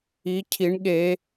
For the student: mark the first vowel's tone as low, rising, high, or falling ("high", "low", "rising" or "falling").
rising